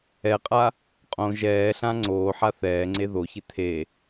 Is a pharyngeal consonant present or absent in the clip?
present